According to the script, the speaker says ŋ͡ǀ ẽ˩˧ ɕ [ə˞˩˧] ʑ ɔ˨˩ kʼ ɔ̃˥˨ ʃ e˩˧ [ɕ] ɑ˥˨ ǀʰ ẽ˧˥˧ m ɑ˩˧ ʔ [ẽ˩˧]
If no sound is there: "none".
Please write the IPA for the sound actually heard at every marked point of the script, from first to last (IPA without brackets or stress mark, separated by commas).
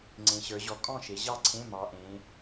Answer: ə˞˩˧, ʑ, ẽ˩˧